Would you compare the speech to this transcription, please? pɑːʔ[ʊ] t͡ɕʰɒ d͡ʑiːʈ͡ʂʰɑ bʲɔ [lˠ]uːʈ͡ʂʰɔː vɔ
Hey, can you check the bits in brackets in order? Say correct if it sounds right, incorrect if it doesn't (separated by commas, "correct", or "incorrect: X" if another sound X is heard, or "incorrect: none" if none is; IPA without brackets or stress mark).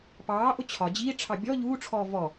correct, incorrect: ʎ